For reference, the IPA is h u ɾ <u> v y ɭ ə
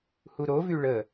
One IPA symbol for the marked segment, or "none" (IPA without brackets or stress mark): o